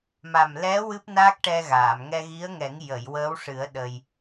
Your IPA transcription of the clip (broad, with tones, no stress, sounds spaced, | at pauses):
m a˨˩ m l ɛ˧˥ w ɨ˦˥ p̚ n aː˦˥ k̚ ʈ ɛ˧ ɣ aː˨˩˨ m ŋ ɛ˧ ɣ i˧˥ ə̯ ŋ ɛ˨˩˦ ŋ j ə˨˩˨ j w əː˧˥ w ʂ ɨ˨˩˦ ə̯ ɗ ə˧ j